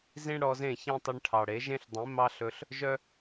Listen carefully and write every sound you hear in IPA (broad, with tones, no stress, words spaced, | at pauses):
zĩ˦ɳɽɔ˧ zẽ˦˨çẽ˦ tˤe˧ɳʈʰɑ˨ ɽe˨˦ʒẽ˦ɬdˤĩ˨˦ mɑ˦ɬɵ˧ɬ | ʒœ˦